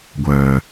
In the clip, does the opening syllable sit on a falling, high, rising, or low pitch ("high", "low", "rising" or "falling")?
low